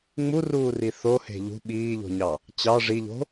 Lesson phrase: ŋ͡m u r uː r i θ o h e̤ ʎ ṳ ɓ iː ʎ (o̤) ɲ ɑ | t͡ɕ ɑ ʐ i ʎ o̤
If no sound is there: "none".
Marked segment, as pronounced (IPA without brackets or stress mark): o̤